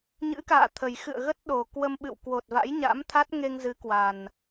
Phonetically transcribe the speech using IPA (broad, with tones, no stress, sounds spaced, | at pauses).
ɲ ɨ̰˧˥ k a̰ː˧˨ t̪ʰ ə˨˩ j x ɨ̰˧˨ ə̯ ɣ ə˦˥ t̚ ɗ o˨˩ k w ə˧ m ɓ ɨ̰˧˨ w k w o˨˩ t̚ v a̰˧˥ j ɲ a̰˧˥ m t̪ʰ a˦˥ t̚ ŋ e˧ ŋ z ɨ˨˦ k w a˨˩ n